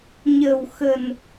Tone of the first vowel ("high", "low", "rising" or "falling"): low